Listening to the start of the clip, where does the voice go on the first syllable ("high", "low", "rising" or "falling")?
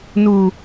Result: low